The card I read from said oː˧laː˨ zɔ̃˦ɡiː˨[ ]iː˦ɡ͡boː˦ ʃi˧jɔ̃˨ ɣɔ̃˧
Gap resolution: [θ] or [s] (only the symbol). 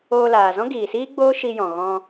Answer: s